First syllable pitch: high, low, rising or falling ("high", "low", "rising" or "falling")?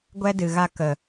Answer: high